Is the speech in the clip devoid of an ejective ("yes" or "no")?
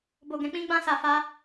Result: yes